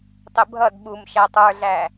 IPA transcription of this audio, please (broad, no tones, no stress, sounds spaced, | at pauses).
tˤ ɪ bʱ ʌ d ɓ u m ʃ æ tˤ ə˞ ɮ æ